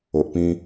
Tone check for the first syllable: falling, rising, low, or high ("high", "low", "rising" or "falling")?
low